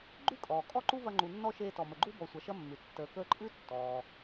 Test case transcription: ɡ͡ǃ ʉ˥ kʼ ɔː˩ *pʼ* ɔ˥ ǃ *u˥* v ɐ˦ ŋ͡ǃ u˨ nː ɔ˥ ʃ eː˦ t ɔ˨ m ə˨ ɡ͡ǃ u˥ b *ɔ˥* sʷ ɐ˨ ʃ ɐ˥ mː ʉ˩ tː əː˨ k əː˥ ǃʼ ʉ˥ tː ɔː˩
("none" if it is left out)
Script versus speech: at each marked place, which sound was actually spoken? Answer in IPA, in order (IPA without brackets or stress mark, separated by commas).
kʼ, u˥, ɔ˨